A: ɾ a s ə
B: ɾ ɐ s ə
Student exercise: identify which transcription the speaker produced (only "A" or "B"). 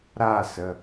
A